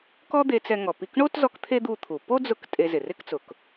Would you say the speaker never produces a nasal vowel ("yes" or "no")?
yes